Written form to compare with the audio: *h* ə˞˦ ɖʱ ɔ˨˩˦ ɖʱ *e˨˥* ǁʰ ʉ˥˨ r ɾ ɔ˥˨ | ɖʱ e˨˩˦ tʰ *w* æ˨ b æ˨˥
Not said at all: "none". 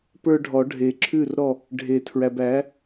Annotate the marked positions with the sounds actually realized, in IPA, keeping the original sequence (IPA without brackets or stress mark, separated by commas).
p, e˨, ɹ